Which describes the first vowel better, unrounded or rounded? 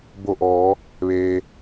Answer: rounded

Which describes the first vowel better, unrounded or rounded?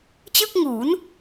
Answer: unrounded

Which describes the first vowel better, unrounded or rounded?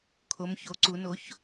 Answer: rounded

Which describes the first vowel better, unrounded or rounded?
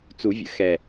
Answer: rounded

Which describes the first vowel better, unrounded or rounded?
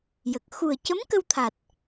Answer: unrounded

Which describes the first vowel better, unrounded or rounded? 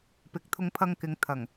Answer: unrounded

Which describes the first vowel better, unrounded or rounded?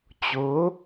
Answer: rounded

